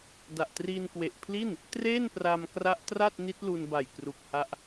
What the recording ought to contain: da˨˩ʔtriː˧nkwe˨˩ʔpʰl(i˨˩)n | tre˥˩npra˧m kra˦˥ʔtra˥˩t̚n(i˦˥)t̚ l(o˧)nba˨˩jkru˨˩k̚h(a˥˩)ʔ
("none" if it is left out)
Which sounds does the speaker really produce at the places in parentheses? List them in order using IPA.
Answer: i˥˩, i˦˥, u˧, a˦˥

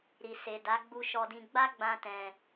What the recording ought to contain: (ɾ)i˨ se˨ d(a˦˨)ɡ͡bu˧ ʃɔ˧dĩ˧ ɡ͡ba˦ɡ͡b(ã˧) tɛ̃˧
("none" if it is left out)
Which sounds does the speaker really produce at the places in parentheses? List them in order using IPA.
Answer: ɾ, a˨˦, ã˧

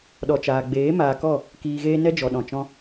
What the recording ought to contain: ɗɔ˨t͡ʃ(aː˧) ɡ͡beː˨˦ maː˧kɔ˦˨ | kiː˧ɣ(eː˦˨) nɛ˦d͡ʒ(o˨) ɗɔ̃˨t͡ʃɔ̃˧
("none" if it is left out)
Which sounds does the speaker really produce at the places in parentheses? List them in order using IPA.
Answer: aː˨, eː˦, ɔ˨

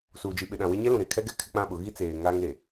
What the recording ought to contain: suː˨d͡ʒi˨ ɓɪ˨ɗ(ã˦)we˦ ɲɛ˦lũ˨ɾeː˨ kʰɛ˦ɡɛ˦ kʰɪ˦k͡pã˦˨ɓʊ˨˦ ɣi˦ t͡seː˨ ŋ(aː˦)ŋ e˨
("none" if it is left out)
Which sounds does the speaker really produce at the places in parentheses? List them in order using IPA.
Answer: ã˨, aː˦

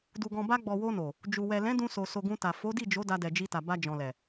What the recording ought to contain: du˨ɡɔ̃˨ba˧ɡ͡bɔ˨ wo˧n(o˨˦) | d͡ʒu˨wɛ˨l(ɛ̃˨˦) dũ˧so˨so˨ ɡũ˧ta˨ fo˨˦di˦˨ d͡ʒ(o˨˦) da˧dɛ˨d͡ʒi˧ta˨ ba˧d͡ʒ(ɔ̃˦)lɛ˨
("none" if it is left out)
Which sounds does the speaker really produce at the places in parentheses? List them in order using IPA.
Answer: o˨, ɛ̃˨˦, o˨˦, ɔ̃˨

